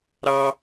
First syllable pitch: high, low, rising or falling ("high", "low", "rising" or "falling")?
high